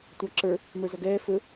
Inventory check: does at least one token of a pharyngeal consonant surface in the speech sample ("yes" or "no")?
no